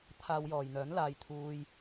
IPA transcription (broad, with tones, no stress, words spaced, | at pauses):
t̪ʰaː˧wjɔː˨jn̪œː˨˥n laː˧j t̪ʰuː˧j